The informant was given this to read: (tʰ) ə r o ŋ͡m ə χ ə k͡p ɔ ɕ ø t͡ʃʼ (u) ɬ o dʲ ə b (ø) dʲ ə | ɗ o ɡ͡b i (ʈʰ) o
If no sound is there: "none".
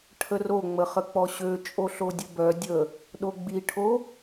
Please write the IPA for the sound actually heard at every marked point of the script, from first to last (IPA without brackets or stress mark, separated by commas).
ʈʰ, o, œ, ʈʰ